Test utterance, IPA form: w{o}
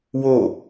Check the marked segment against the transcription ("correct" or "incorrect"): correct